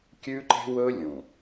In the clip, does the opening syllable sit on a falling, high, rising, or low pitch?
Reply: high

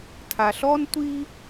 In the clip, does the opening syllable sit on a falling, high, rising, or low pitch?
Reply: low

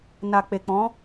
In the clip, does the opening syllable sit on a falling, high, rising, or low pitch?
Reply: low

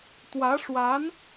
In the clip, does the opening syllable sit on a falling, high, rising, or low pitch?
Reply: rising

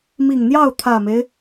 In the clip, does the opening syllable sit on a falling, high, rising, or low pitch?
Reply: low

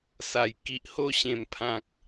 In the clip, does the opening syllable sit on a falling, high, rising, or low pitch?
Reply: low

